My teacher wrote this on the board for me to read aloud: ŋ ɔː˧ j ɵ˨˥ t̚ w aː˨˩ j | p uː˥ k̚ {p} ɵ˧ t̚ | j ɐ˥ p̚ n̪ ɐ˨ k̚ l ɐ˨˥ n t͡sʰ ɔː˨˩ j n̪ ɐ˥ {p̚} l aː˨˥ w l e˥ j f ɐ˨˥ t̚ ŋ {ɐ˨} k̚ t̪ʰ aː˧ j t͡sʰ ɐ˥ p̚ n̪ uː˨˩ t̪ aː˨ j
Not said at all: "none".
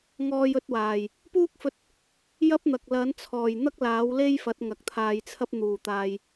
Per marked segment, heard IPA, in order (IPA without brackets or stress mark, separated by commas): f, k̚, ɐ˨